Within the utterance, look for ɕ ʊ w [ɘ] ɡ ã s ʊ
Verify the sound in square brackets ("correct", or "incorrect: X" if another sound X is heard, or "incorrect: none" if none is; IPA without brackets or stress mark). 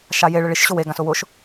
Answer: incorrect: e